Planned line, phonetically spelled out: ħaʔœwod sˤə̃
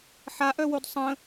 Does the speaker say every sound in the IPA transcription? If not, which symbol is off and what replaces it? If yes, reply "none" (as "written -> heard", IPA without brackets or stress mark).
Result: none